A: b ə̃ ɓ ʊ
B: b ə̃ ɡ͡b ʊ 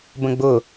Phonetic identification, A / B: B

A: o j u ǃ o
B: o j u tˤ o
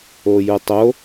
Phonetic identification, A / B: B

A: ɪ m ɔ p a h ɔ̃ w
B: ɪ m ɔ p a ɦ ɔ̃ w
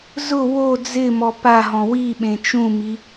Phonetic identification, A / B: B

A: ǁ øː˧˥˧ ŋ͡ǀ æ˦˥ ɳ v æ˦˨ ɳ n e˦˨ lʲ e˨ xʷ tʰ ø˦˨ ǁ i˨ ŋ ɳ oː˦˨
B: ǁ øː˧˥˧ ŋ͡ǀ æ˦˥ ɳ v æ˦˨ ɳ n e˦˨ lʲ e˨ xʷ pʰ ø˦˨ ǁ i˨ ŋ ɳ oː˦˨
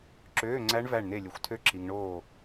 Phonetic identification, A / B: A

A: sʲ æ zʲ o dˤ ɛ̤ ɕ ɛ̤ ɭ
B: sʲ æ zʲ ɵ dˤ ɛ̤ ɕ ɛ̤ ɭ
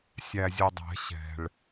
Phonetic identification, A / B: B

